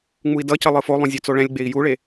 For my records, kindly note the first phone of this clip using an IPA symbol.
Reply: ŋ͡m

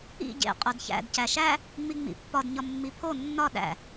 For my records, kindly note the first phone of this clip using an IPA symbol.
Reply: ḭ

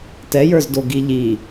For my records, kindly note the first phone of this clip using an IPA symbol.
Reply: t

